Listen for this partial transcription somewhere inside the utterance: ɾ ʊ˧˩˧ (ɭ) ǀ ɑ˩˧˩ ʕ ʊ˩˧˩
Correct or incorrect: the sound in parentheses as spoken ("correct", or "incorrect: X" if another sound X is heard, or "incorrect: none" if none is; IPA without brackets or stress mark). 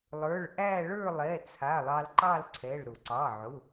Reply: incorrect: none